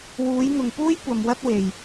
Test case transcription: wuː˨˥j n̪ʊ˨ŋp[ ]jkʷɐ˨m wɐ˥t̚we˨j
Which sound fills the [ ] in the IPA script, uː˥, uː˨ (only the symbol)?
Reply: uː˥